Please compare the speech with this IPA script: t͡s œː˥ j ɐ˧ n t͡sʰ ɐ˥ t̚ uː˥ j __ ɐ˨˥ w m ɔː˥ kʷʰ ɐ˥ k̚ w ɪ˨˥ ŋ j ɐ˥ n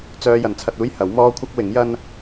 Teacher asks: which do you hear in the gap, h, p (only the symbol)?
h